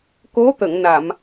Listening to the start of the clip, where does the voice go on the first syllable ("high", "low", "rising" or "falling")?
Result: rising